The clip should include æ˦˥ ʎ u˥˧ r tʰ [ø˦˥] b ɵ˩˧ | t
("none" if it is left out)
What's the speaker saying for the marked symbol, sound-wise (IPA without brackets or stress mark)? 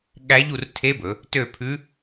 e˦˥